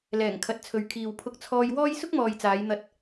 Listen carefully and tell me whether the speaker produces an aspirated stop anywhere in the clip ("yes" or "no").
yes